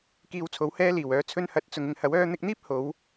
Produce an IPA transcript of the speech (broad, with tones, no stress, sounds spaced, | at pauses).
k iː˧ w t͡sʰ o˨˥ w h ɛː˥ l iː˨˩ w œː˨˧ t͡sʰ ɵ˧ n h ɐ˨ t̚ t͡s ʊ˨ ŋ ɪ˨ ŋ h ɐ˨˥ w œː˧ n̪ ɪ˧ k̚ n̪ iː˥ p̚ h o˨˥ w